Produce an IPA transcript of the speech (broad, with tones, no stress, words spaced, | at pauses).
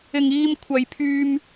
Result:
ɪ˨ŋiː˧mkʷʰɐ˨jpʰyː˧m